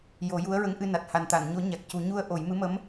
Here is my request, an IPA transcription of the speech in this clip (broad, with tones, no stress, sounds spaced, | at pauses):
j o˨˩˦ j u˧˥ ə̯ ɹ ə˧˥ ŋ ʔ ɨ˧ n a˨˩ t̚ h a˨˩ n t̪ a˨˩˨ n ɲ o˨˩˦ ɲ a˨˩ k̚ c u˨˩˦ ɲ u˧ ə̯ ʔ o˨˩˦ j m ɨ˧˥ m ə˧˥ m